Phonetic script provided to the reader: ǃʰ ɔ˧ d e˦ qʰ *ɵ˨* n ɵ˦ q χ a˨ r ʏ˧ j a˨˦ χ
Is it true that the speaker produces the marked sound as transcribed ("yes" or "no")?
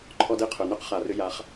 yes